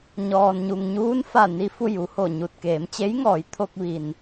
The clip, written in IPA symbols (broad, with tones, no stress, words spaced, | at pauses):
ɲɔː˩nɲu˩ŋɲuː˧˥nfa˧˩ ni˧ fu˥˨ju˩˧ho˧˩ɲu˧˩t̚ keː˩˧mt͡ɕe˧˥jŋɔː˩˧jt̪ʰo˧k̚ ʋi˩n